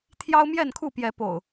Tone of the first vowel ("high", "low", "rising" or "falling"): high